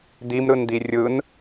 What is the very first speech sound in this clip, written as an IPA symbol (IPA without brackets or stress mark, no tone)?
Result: d̪